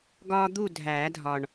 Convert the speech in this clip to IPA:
ɡ ɒː˥ d̪ u˥˨ dʱ æː˨˩˦ dʱ ɒ˨˩ ɳ

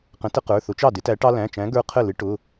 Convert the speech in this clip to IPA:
q ə̃˨˥ t ə˦ q ə˞˩˧˩ θ ʊ˨˥ t͡ʃ ɑ˥˩ d ɪ˨˥ t æ˨˥ ʈ ɑ˦ l æ̃˩˧˩ t͡ʃ æ̃˨˥ ɡ ə˞˦ qʰ ə˥˩ l ɪ˨˥ ʈ ʊ˩˧˩

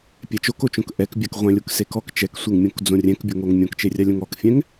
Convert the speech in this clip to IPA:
pʲ ɛ t͡ʃ o k o t͡ʃ õ k ʔ ɛ k bʲ a k ʁʷ ɛ̃ lʲ o k s e k ɔ k t͡ʃ ɛ k sʷ e ŋ mʲ õ k d͡z õ rʲ ɛ̃ k bʲ o ŋ o ŋ mʲ õ k t͡ʃ e rʲ a lʲ õ ŋ ɔ k fʲ ɛ̃ ŋ

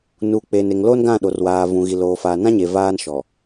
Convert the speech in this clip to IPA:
n u˨ k͡p e˨ n e˨ ŋ l o˦ n ɡ ã˦˨ ɗ o˨ r w aː˨ v ũ˨ ɣ i˨ l oː˨ f aː˨ n ã˦ ɲ e˨ v aː˦ n ʃ ɔ˨

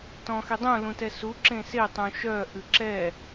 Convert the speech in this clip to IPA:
t ɔ̃ x e dˤ ũ l ũ t ɛ s u ǁ ẽ s e tˤ ũ ʃ œ ʔ ɨ ǁ ɛ

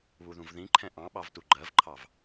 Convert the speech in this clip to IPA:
β u ð ũ v ð ĩ ǃʰ ɛ̃ ʔ ɑ̃ ɓ ɑ v t u ɡ͡ǃ ɜ v ǃʰ ɑ v

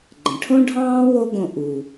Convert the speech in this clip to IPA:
ɡ͡ǃ ə̃˩ ʈʰ õ˥ ɖʱ ɑ̃ː˥ w o˥ ɡ õ˧ ʔ u˩

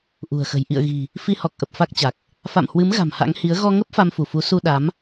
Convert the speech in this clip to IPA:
ʔ ṳ˨˩ ə̯ x ə̤˨˩ j ʔ ḭ˧˨ ə̯ ɣ i̤˨˩ | f i˧ h ɔ˨˩ k̚ ʔ ə˨˩ p̚ f a˦˥ k̚ t͡ɕ a˨˩ k̚ | f a̰˧˨ m h w ɨ˨˦ m ɣ a̤˨˩ m h a̰˧˥ ŋ h i˨˦ ə̯ ɣ ɔ˧ ŋ ə˦˥ p̚ f a˧ m f u˧˩ f u˨˦ s u˧ ɗ a˨˦ m

